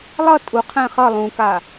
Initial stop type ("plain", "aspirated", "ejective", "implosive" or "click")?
ejective